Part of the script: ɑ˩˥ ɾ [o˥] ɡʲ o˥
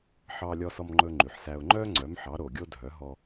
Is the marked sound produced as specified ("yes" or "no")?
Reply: no